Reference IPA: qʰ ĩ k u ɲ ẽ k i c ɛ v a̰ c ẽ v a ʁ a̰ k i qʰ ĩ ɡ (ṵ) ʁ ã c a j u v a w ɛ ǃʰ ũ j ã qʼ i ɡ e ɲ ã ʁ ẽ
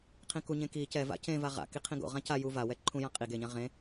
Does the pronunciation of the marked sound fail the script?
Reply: yes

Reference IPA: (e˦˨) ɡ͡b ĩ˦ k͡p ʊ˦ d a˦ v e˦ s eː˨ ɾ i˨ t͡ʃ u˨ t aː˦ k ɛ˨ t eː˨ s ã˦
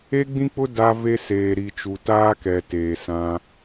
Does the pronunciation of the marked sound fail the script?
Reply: yes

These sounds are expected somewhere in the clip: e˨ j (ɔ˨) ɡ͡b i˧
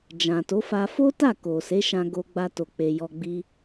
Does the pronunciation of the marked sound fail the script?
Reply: no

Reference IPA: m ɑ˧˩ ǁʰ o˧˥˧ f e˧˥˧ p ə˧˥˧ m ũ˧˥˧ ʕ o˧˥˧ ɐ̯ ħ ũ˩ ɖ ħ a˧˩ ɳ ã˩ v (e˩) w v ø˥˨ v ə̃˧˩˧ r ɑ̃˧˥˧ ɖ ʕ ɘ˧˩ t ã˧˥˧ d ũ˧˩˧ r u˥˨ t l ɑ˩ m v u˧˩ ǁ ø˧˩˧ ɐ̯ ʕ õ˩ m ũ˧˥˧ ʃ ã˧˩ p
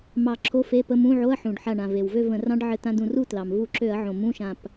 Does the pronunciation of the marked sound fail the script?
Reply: no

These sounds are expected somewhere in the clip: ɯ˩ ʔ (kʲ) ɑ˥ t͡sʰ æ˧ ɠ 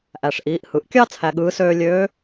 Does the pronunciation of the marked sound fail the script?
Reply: no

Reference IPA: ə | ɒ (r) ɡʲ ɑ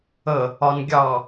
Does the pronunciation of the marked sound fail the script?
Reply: yes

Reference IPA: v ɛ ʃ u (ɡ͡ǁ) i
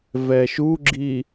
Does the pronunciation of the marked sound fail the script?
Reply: no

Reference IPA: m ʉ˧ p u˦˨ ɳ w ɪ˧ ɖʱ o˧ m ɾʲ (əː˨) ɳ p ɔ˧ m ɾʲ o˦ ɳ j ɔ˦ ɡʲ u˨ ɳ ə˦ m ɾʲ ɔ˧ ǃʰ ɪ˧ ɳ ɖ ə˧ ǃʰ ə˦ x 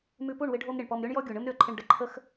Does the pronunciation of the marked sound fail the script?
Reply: yes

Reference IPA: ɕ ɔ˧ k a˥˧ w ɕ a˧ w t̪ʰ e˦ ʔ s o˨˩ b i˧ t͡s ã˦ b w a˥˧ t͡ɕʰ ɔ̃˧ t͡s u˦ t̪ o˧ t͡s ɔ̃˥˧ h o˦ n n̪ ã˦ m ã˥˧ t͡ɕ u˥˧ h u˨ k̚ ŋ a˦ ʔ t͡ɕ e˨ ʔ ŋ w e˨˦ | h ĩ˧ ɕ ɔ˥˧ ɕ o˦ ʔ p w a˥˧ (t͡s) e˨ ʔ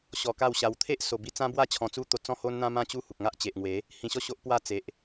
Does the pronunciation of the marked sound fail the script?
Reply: no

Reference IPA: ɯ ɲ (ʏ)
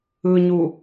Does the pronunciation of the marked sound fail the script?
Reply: yes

